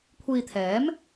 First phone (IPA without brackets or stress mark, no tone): kʷʰ